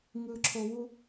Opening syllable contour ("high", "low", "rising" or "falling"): low